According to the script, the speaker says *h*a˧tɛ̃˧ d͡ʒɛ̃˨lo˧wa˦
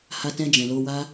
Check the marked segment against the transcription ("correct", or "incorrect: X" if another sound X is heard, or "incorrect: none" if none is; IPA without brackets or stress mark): correct